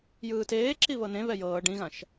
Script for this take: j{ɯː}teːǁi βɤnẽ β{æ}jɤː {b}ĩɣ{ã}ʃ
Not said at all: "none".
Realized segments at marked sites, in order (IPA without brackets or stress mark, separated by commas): ɯː, ɛ, ɖ, ã